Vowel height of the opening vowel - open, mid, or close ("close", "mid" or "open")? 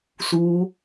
close